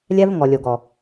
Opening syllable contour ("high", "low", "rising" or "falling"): high